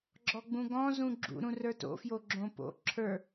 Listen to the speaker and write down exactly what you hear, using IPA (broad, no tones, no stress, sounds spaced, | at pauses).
ɡ͡ǁ ɔ ɡ͡b ũ ɡ ɔ̃ z ũ ɡ͡ǁ ṵ ɾ ũ r ə˞ t o̰ f j o ɡ͡ǁ õ p o̰ ǁʰ ə˞